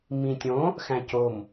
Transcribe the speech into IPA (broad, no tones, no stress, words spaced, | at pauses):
mĩtʲõ | xæ̃com